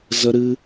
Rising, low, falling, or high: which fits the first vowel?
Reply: high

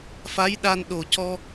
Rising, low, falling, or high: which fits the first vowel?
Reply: rising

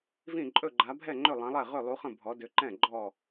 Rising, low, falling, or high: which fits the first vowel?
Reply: falling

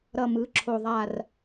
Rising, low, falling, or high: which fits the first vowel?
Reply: low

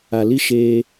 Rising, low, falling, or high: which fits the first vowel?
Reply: low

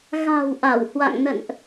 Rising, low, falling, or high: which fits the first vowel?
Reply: low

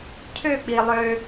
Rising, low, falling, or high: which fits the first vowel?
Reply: falling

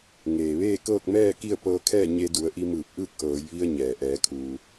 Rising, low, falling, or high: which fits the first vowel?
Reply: low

